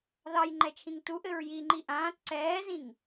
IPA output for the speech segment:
ðɑjŋ͡ǃɛt͡ʃʰĩŋ tuʔɘɹ jiŋ͡ǃi ʔãːt ǀɛːzĩŋ

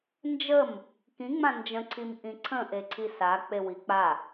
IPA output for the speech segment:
nd͡ʒəm | kĩŋ͡mã nd͡ʒə̃ǀʰim ʔĩǀʰə̃ ʔeǀʰisa k͡pewik͡pa

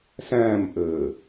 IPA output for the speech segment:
sɛ̃ːmʔɘː

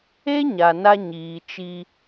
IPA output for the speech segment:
e˦ ɲa˨na˦ ɲiː˨t͡ʃi˦

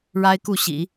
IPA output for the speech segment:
ɻa˥ɪ̯ku˥˩ɕḭ˨˩˦

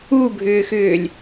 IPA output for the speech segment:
uɡʱʏːxʏːlʲ

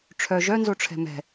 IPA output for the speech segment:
ʈ͡ʂʰœ ʒœnzoʈ͡ʂʰɛ̤ mɛ̤

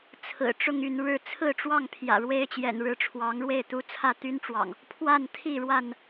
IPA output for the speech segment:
t͡sʰɹ̩˨˩ ʈ͡ʂʊ˥˨ŋy˥˨nɻɻ̩˥˨ t͡sʰɹ̩˥˨ʈ͡ʂwɑ˥˨ŋ pʰjä̰˨˩ɻwe˦ɪ̯t͡ɕjɛ̰˨˩n ɻɻ̩˨˦ʈ͡ʂʰwɑ˨˦ŋɻwe˥˨ɪ̯ t̪u˦ t͡sʰä˥˨t̪y˦nʈ͡ʂwɑ̰˨˩ŋ | pʰwa˥˨n t̪ʰi˥˨ɻwa˥˨n

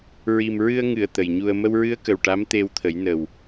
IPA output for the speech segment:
ɹi˨˩mɹɨ˧ə̯ŋɨ˨˩˨ə̯ t̪ə˨˩jɲu˧ə̯ mə˧wɹɨ˧˥ə̯kə˨˩w ʈa˧˥mt̪e˧wt̪ʰə˨˩˦j nə˨˩w

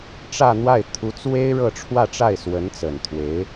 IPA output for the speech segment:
ʈ͡ʂä˥˧n̪wa˥˩ɪ̯ t̪ʰu˧˥t͡swe˥ɪ̯ ɻɤ˥˧ʈ͡ʂʰwä˥˧ʈ͡ʂa˥˩ɪ̯ swə˧˥nt͡sə˨˩nt̪ʰwe˧˥ɪ̯

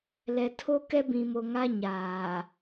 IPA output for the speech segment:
lɛ˨tʰo˦ kɛ˦bĩ˨mo˨ŋa˦ ɲaː˨

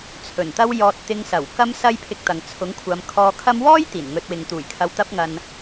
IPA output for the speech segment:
t͡sʰɵ˨˩nt̪ɐ˥w jɔː˧t̚t̪ɪ˧ŋsɐ˨˩w kɐ˥msɐ˥jpʰɪ˧k̚t̪ɐ˨ŋ t͡sʰʊ˨˥ŋkʷʰɐ˨˧mkʰɔː˧kʰɐ˥m wɔː˥j t̪iː˨˩nŋɵ˧t̚wɪ˨˧ŋ t̪uː˨˩jkʰɐ˧wt̪ɐ˥p̚ŋɐ˧n

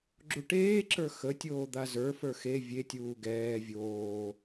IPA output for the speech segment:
ɡ͡ǁuʈeːǁə˞ xətʲoː d̪azə˞fə˞ xe vʲetʲuː ɡɛː vʲoː

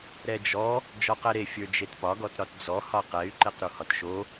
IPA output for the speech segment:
ɾɛd͡ʒɔ | d͡ʒɔqɛɾe fʲə˞d͡ʒetpɒ ɡɔtɾɒtd͡zɔ hɒqɛy̯ ǃeqɾuhɒtʃo

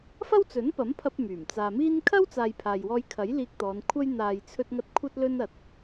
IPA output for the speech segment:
fɐ˥wt͡sɵ˨˥npɐ˨˥mpʰɐ˧p̚ myː˨˩m t͡saː˨miː˥n kʰɐ˥wt͡saː˨j pʰaː˨jwɔː˧jkʰɐ˨˥jliː˧k̚ t̪ɔː˨˧nkʷʰɐ˥j n̪aː˨jt͡sʰɵ˧t̚ŋɐ˧t̚ kʷʰɐ˥t̚lɵ˥nɐ˧t̚

